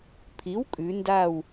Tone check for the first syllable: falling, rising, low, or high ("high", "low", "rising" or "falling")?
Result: rising